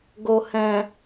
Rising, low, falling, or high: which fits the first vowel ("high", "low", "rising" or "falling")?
low